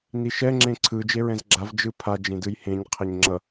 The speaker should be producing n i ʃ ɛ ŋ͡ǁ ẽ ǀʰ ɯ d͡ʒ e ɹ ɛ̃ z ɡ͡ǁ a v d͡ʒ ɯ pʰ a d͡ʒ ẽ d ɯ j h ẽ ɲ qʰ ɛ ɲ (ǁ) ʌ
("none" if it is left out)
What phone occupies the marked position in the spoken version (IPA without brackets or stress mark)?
ŋ͡ǁ